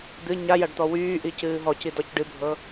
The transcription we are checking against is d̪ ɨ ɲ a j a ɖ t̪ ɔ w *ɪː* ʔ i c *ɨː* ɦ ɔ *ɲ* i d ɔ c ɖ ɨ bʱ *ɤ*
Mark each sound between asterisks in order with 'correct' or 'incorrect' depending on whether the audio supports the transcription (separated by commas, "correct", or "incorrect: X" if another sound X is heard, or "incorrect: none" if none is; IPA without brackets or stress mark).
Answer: incorrect: yː, correct, incorrect: c, correct